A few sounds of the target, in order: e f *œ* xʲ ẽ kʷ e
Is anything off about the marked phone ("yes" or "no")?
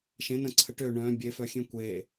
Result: no